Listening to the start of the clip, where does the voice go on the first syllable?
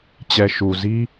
low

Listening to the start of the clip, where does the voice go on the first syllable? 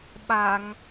low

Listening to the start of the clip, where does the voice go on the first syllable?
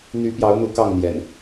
rising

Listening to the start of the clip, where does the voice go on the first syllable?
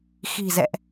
low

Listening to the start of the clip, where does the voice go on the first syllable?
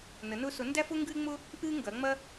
rising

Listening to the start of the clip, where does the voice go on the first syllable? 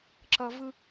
high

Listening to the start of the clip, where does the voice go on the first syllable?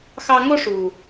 high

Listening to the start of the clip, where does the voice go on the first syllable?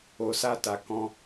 low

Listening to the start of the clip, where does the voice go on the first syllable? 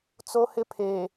high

